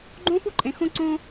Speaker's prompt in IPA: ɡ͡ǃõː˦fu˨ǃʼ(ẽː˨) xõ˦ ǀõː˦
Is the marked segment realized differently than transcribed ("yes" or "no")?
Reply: yes